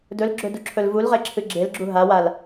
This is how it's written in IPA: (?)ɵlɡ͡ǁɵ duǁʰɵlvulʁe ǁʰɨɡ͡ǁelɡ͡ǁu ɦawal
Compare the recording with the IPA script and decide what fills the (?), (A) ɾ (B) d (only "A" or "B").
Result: B